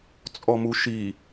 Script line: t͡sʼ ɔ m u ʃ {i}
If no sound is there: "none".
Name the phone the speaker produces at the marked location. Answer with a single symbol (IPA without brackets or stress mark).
i